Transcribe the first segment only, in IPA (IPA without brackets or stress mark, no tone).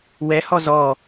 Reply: w